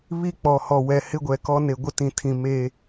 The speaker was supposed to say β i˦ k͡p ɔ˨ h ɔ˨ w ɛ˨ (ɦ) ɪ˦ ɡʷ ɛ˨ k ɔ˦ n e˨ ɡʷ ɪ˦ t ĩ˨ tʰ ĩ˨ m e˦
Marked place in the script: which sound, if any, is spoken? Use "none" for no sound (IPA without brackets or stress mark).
h